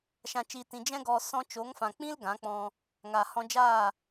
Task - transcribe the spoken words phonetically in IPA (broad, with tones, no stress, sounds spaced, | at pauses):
ʃ ã˧ t͡ʃ i˧ t ĩ˧ d͡ʒ ɛ̃˦ ɡ ɔ˧ s ɔ̃˧ t͡ʃ o˨˦ ŋ f ã˨ k͡p ĩ˦ l ɡ ã˨˦ k͡p ɔ̃˧ | ŋ aː˨ h ɔ̃˧ d͡ʒ aː˦˨